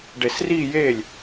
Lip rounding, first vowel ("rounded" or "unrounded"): unrounded